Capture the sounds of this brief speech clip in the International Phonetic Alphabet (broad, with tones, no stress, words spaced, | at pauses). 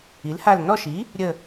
i˩˥lha˦˨l nɔ˦˨ʃi˩˥ | ɾʲə˦˨